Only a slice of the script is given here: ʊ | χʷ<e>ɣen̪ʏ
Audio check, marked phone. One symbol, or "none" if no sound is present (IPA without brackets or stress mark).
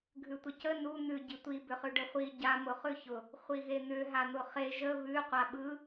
i